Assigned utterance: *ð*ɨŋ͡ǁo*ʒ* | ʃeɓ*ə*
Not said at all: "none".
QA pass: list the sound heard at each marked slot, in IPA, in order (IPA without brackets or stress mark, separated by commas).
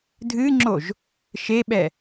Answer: dʱ, ʒ, ɛ